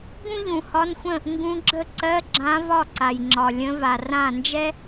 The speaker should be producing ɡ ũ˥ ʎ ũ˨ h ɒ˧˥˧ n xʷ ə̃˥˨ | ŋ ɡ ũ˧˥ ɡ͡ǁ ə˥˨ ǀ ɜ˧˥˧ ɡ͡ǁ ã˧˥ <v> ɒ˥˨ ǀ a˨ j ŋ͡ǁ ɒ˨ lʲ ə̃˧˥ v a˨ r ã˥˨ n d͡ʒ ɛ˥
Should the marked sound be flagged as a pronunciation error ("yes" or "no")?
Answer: no